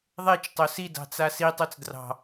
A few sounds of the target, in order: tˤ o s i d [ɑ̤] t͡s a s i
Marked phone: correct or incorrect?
correct